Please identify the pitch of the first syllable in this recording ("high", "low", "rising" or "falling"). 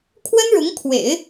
high